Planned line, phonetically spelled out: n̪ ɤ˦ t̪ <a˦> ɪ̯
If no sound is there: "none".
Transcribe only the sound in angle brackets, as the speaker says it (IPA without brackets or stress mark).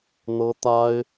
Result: a˦